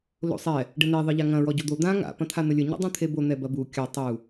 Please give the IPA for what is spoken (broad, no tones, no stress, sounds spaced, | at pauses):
l o̰ sˤ ɛ | ɖ ɘ n e ðˤ ɨ ʎ a ŋ ɐ̃ ɹ ɔ ɟ o d̪ o d̪ ã ŋ a̰ p ɐ̃ t̪ʰ a n̪ ɘ lʲ ɘ ɲ ṵ dˤ ũ t̪ʰ e b o n̪ ɛ b ɐ b u kʲ a tˤ u